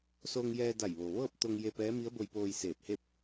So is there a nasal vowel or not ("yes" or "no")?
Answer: no